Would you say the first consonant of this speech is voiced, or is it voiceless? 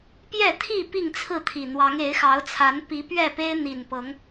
voiceless